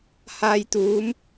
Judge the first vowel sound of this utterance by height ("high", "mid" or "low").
low